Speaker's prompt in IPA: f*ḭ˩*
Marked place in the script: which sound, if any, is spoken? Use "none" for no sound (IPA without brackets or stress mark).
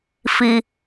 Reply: i˩